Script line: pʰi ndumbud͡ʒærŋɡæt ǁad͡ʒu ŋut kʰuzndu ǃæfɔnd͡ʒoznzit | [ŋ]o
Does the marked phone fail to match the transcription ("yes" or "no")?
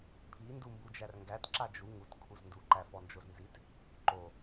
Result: yes